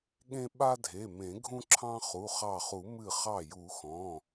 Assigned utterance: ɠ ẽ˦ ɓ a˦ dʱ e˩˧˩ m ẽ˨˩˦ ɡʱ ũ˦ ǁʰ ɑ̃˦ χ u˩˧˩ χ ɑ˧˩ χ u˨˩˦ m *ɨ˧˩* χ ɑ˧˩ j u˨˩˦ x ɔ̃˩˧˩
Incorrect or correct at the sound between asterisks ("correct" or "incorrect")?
correct